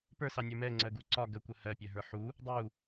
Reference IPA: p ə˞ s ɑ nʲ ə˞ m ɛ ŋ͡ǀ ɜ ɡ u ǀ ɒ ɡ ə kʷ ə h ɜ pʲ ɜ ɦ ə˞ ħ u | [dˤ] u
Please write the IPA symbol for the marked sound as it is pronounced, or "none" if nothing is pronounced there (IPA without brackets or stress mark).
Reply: dˤ